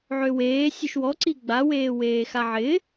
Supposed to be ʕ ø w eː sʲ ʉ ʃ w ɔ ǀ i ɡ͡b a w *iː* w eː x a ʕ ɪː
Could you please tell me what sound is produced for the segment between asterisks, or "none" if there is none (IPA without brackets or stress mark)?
eː